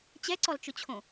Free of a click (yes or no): no